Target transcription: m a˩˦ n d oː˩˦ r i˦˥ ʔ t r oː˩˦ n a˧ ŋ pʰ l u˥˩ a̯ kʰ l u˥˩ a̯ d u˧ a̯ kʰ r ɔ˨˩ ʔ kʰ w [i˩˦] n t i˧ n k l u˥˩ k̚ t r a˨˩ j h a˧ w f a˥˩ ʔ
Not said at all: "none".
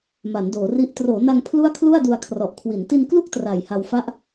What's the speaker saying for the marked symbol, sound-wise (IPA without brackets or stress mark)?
i˩˦